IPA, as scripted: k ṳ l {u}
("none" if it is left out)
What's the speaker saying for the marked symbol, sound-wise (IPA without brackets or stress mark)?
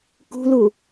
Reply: u